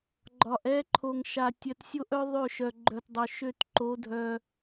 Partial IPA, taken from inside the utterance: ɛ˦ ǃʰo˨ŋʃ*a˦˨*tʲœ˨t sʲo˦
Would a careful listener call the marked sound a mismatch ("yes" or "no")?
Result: yes